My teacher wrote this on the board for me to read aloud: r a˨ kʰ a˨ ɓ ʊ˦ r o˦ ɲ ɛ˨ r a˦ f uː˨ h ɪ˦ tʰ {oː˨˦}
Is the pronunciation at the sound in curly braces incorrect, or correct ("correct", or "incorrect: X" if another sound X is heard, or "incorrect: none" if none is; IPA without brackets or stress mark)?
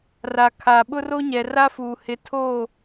incorrect: oː˦˨